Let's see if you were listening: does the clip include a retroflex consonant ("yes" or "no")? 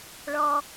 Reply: yes